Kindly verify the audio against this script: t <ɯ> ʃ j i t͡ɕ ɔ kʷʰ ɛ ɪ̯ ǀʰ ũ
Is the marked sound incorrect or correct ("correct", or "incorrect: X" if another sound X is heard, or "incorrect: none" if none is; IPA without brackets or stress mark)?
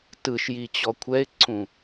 correct